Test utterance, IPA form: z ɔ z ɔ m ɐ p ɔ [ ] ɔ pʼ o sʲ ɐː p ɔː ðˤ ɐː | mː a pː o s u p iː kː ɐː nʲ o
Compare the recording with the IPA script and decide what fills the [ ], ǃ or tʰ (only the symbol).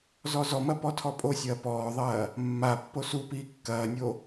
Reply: tʰ